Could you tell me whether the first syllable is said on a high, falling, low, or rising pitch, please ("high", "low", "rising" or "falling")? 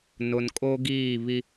low